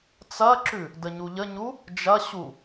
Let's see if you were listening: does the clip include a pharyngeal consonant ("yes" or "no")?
no